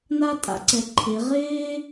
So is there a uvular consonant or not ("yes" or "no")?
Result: yes